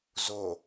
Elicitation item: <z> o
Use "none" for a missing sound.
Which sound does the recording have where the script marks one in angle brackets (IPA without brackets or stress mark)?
z